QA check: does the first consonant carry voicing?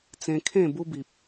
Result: no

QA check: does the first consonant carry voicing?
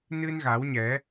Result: yes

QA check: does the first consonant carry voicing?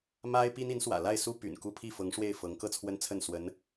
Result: yes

